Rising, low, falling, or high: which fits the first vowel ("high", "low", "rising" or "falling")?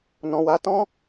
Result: low